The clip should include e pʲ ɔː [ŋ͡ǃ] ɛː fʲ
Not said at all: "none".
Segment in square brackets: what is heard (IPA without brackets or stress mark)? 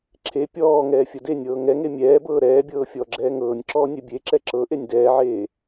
ŋ